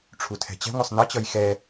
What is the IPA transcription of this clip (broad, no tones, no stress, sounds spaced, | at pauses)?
ʈ͡ʂʰ u tʰ ɛ̤ t͡ɕ ɛ̤ ŋʷ ʌ sˤ n ʌ t͡ɕ ʌ j x ɛ